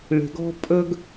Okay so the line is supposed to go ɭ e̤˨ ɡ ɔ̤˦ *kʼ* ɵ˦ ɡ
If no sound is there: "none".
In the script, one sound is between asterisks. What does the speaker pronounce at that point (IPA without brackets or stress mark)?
pʼ